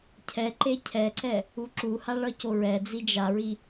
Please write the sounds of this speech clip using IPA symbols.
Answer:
cʰɛǃe cʰɛǀɛ | uǁuha ɭʌcoɹɛd͡zi d͡ʒaɹi

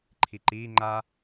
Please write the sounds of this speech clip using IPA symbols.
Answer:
ǃʰiǃiː ŋ͡ǃa

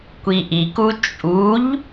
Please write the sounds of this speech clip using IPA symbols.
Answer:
kʷiʔiku t͡ʃʼuʎ

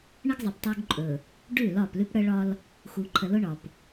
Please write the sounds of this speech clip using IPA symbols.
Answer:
ɳə˦ɡzˤə˨p tˤu˦ɡǃʼɵ˨ | ɖʉ˦˨ lɒ˦˨plʉ˦pɽə˦ɭɒ˦l | xu˨ǃʰə˨lʊ˦ ɳɒ˨p

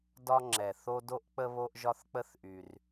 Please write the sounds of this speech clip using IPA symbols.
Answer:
dɒ˧ŋ͡ǁɛ˩ θo˧do˧ʔk͡pə˧ βo˧ʔʒɒ˧θk͡pə˧θʔy˩r

